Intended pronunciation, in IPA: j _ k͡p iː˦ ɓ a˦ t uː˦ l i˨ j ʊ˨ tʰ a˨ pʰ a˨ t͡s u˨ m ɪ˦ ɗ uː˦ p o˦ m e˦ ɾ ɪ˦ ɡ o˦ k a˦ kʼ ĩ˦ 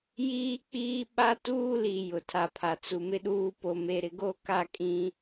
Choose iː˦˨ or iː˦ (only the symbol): iː˦